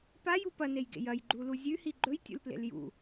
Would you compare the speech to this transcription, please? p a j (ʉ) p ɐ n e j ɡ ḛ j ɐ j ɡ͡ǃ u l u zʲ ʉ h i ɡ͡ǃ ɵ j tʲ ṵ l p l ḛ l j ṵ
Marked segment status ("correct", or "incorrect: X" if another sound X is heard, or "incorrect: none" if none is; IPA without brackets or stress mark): incorrect: u